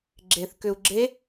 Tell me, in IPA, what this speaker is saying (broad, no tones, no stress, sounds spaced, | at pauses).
ɡ͡ǁ e θ k ʏ u̯ ɡ͡ǁ e